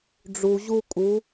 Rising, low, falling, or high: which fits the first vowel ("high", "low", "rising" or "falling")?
low